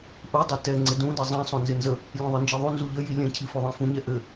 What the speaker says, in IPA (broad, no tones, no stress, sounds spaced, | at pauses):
ʔ u dˤ ɛ t ɛ ŋ͡ǀ ɪ d ũ d ɘ zˤ ɛ̃ sˤ õ n z ɪ n z ə | lʲ ɛ̃ ðˤ ɯ n d͡ʒ i ðˤ u n z u ʎ ə j i lʲ ɛ̃ cʰ i f o ðˤ ẽ f ũ ɲ ɛ ʔ ɘ